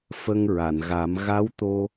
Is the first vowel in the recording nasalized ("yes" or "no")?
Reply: no